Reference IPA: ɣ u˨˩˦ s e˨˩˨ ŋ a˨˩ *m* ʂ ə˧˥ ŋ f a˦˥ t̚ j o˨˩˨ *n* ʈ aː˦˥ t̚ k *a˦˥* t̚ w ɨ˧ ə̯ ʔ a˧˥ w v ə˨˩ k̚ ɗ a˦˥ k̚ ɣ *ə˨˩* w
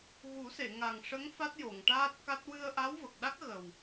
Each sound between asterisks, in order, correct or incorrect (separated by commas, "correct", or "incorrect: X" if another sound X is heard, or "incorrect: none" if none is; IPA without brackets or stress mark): incorrect: ŋ, incorrect: ŋ, correct, correct